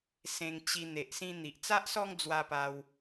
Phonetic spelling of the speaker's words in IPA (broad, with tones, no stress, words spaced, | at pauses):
sẽ˧ŋt͡ɕi˧ n̪e˨ʔsĩ˧ n̪i˨ʔt͡sa˦ʔsɔ˦ŋd͡zwa˧ pa˧w